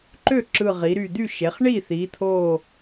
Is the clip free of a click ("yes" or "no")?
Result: no